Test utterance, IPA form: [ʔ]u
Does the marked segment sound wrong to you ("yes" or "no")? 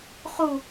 yes